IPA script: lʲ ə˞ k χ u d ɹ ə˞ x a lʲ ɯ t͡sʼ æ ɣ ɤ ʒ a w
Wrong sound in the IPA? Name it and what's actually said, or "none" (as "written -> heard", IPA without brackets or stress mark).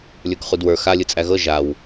ɹ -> w